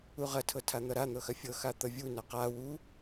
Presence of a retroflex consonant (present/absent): absent